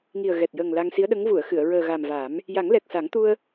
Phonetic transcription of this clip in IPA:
ŋ i˨˩ ə̯ ɣ ɛ˨˩ t̚ j əː˨˩ ŋ l a˧ ŋ s i˧˥ ə̯ ɗ ə˧˥ ŋ v u˨˩˨ ə̯ x ɨ˨˩˨ ə̯ ɹ əː˨˩ ɣ a˨˩ m v a˨˩˦ m | j a˨˩˦ ŋ l ɛ˨˩ k̚ s a˨˩˦ ŋ t̪ u˧ ə̯

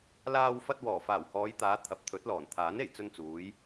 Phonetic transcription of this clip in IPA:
l aː˧ w f ɐ˧ t̚ w ɔː˨˩ f aː˨˩ w h ɔː˨˧ j t̪ aː˨˧ t̪ʰ ɐ˨˥ p̚ t̪ʰ ɵ˨˥ t̚ l ɔː˨˩ n t̪ʰ aː˨˥ n e˨˩ j t͡s ɵ˧ n t͡s uː˨˧ j

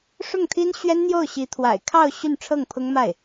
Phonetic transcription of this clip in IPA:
ʂ ʊ˥˩ ŋ t̪ʰ i˥ n ɕ ɥ ɛ˥ n n̪ j o˥˩ ʊ̯ ɕ i˧˥ t̪ʰ w a̰˨˩ ɪ̯ kʰ ɑ˥˧ ʊ̯ ɕ y˥˧ n ʈ͡ʂʰ ɤ˥˩ ŋ pʰ ʊ˥ ŋ m a˥˩ ɪ̯

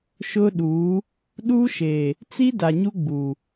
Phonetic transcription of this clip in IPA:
ʃ ʊ˦ ɗ uː˨˦ | ɗ u˦ ʃ e˨ | t͡s i˦ d a˨ ɲ u˦ ɡ͡b u˨

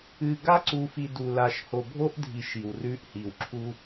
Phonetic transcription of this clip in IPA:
ɨ˨ ɡ a˦ ǀ u˨ f i˨ d u˨ l a˨ ʃ h o˨ bʱ o˦ ʔ dʱ i˨ ʃ i˨ w r ʉ˦ ʔ h i˨ w ǁʰ u˦

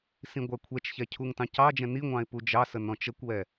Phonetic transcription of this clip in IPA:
s ĩ ɡʷ æ kʷʰ ɛ t͡ʃ ç ɛ cʰ u ŋ t ɑ̃ c ɑ d͡ʒ ɛ̃ n i ŋʷ ɑ̃ ɪ̯ p u d͡ʒ ɑ s ə n ɔ̃ t͡ʃ ə kʷ w ɛ

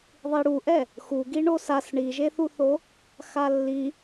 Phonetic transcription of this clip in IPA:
ðˤ i ɽ u ʔ ɛ | x u ɡ i ɳ o s a s ɳ i ʒ e θ u θ o | x a lː i

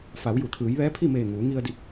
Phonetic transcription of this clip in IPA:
f a˩˧ w j u˩ t̪ʰ ɯː˩˧ j ʋ ɛː˧˥ pʰ i˥˨ m eː˧˩ ŋ uː˩˧ ŋ i˧ ə̯ d i˧˩ p̚

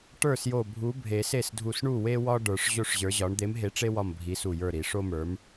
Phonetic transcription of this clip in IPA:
ʈ ə˞˥˩ s j o˧˩ bʱ u˨˥ bʱ e˨˩˦ s e˥˩ s dʱ u˧˩ s ɳ u˥˩ w e˦ w ɒ˦ ɖ ə˞˨˩˦ ʂ ʑ o˦ ʂ ʑ ə˞˨˥ ʑ ɒ˨˥ ɳ d̪ e˨˥ m ɦ e˨˥ ʈ͡ʂ e˦ w ɒ˧˩ m bʱ i˨˥ s u˧˩ j ə˞˥˩ ɾ i˨˩˦ ʂ o˦ m ə˞˨˥ m

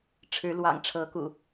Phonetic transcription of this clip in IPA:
ʈ͡ʂʰ ɻ̩˨˦ l w ɑ̰˨˩ ŋ ʈ͡ʂʰ ɤ˨˦ k ṵ˨˩

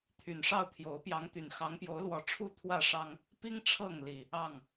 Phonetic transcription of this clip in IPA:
t̪ʰ y˨˩ n ʂ ɑ˥˨ ʊ̯ t̪ʰ j o˨˦ ʊ̯ p j ɑ˨˦ ŋ t̪ y˨˩ n x ɑ˨˦ ŋ p j o˨˦ ʊ̯ l w ɔ˨˦ ʈ͡ʂʰ u˥˨ t̪ʰ w ä˥˨ ʂ ɑ˦ ŋ | p i˦ ŋ ʈ͡ʂʰ ɤ˥˨ ŋ l i˨˩ | ɑ˥˨ ŋ

